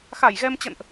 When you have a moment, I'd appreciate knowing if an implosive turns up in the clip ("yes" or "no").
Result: no